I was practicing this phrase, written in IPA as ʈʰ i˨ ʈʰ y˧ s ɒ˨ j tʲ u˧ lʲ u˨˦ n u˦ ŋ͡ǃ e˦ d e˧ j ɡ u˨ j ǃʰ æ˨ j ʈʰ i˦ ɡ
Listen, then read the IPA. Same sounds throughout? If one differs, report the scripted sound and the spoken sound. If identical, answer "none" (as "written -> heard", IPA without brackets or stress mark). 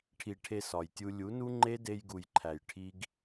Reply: y˧ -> e˧